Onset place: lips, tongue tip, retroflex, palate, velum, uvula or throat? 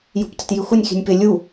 palate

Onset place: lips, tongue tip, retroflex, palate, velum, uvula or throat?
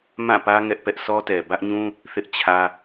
lips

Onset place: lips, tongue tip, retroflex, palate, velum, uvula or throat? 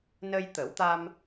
tongue tip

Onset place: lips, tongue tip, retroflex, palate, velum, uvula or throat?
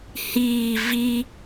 throat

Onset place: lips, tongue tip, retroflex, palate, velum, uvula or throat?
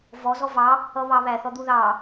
lips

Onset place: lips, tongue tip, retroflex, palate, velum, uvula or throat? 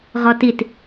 uvula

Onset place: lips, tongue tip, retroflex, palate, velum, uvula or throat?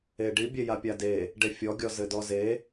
retroflex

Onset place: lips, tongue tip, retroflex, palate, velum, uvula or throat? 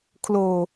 velum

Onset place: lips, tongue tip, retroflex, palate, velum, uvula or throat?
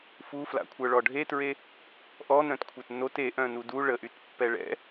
lips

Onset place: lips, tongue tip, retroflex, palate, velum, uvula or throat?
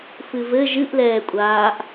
lips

